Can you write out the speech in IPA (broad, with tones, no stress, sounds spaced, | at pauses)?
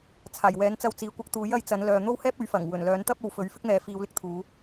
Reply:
t͡sʰ aː˨˩ j w ɛː˨˥ n t͡s ɐ˧ w t͡s iː˨ kʷ ɐ˧ k̚ t̪ uː˨˥ j ɐ˨˧ j t͡s ɐ˨˥ n l œː˨ n̪ o˥ w h ɛː˥ p̚ ɵ˨˥ ɥ f ɐ˨˩ ŋ w ɵ˨˩ n l œː˨˥ n t̪ ɐ˥ p̚ o˨ w f ɵ˨˥ ɥ f ɪ˥ k̚ n̪ ɛː˨ f iː˨˧ w l ɪ˧ k̚ t̪ʰ uː˨˧